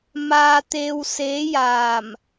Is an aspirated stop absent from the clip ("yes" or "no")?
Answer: yes